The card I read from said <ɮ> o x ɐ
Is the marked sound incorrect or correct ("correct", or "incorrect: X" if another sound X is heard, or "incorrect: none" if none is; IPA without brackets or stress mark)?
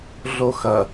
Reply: correct